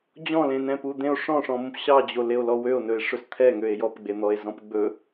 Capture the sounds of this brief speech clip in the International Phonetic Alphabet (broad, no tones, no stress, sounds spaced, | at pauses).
d͡ʑ ɔ̃ l ẽ n ɛ̃ p u d̪ ẽ o̯ ʂ ɔ̃ ʂ ɔ̃ m ũ p ɕ ɑ d͡ʑ o l e o̯ l ɔ w ø o̯ n ɵ e̯ ʂ ɵ s t̪ʰ ɛ ŋ ø e̯ j ɔ p ɡ͡b e n̪ ɔ e̯ z ɔ̃ p ɡ͡b ɵ